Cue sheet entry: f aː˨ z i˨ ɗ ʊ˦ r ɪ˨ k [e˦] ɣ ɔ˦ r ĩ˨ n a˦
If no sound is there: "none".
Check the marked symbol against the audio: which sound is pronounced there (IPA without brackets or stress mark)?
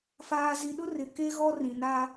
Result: e˦